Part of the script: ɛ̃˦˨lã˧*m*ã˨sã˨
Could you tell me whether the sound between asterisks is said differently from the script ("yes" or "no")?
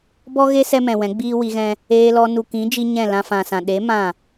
yes